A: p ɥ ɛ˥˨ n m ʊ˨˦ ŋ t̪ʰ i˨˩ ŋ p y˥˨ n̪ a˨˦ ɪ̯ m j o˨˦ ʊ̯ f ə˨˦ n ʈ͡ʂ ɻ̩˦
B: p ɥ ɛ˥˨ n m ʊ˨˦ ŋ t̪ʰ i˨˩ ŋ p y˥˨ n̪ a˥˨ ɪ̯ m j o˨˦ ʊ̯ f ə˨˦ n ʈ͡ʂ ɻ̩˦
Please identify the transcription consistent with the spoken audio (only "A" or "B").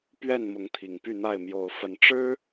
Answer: B